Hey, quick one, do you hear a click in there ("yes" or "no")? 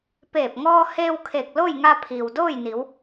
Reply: no